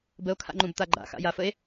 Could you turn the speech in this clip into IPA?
bəo̯kʰa̰ŋ͡ǃũbt̪a ɡ͡ǃa̰xa̰jafəe̯

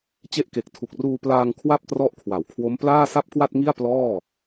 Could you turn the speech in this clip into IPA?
t͡ɕe˦˥ʔke˨˩k̚ tʰu˨˩k̚ruː˧ plaː˧ŋ kʰwa˥˩p̚trɔ˦˥ʔkʰwa˩˦wkʰwo˦˥m plaː˥˩sa˥˩p̚kwa˥˩t̚ŋi˥˩a̯ plɔː˥˩

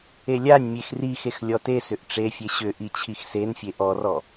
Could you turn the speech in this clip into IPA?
elʲanʲmʲex rixex lʲɔtesʏʔ ʈ͡ʂefʲe ɕʏʔi t͡ɕʰixsenfʲe ʔɔrɔ

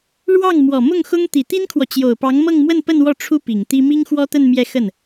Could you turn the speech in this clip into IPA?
ɻwɑ˥˩ŋ mwɔ˨˩mʊ˥˩ŋxʊ˥ŋ t̪i˨˩t̪i˥nkʰwɔ˨ t͡ɕjo˨˩ʊ̯pɑ˧˥ŋmɤ˥˧ŋmwə˥˧n pə˥˧nwɔ˥˩ ʈ͡ʂʰu˥ pi˨˩ŋt̪i˥ mi˥ŋxwɔ˥t̪ə˥˧n mjɛ˥˧xə˥˩n

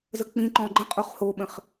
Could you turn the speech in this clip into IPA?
zək͡pĩǃɔ̃ ɡ͡ǃə̃ qʼoχhoɓə̃χ

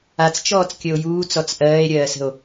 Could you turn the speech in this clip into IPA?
at͡st͡ʃɔːt͡skʲəo̯ juːt͡sɔt͡s ʔɜːe̯ɾʲɜːsə̤o̯

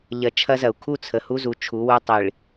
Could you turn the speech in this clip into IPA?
ʎɐ˨ t͡ʃʰɐ˦zɐ˨u̯ kʰu˦˨t͡sʰə˨hu˦ zu˨t͡ʃʰu˨˦wu˦ tˤi˨ɭ

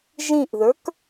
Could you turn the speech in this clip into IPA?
ʒĩʔðə˞k

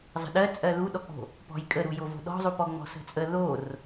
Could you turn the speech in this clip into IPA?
zˤə̤ɗɜ t͡sʼɜðuɗɔk͡po̤ | pɔ̤jkʼəɾu jovo̤ɗɔ̤zˤu pɔŋ͡mɔ̤sə̤t͡sʼə ðor

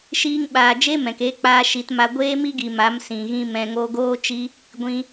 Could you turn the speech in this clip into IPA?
ʃiː˦ŋɓaː˧ d͡ʒe˦mɛ̃˨ke˧k͡paː˧ ʃi˧tma˧ ɡʷeː˦mi˦ɡi˨ ma˨˦msĩ˨ɣĩ˧ mɛ̃˧ ŋo˧ɡoː˦t͡ʃi˦ | ɡʷĩ˧

